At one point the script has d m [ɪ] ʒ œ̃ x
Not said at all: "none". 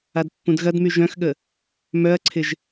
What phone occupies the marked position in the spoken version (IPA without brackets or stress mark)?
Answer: y